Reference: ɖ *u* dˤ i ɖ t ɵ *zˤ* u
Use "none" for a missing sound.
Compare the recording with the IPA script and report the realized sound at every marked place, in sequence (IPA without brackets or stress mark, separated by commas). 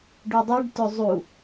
u, zˤ